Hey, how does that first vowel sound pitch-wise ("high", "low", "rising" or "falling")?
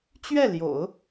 falling